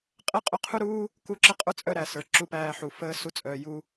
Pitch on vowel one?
high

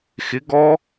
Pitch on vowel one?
rising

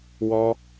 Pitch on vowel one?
high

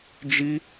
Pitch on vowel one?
high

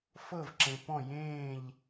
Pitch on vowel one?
falling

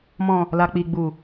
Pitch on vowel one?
low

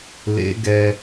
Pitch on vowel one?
rising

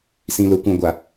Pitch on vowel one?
low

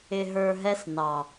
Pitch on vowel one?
low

